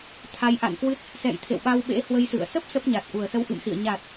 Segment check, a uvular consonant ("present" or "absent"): absent